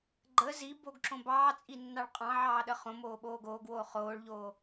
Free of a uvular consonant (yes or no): no